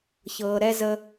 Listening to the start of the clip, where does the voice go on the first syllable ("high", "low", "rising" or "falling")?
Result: low